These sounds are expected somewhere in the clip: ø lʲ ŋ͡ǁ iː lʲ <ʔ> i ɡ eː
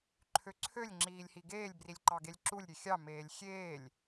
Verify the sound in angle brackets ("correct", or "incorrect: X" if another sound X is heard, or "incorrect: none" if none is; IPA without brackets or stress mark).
incorrect: h